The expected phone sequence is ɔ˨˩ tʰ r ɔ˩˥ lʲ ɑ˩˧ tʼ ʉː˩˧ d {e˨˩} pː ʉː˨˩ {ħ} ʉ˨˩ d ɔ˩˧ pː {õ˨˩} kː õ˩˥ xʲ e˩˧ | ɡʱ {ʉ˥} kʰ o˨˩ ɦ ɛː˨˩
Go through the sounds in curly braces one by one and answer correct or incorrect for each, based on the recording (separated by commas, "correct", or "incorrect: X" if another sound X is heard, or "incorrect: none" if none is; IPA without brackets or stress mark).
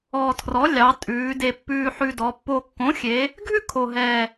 correct, correct, incorrect: o˨˩, correct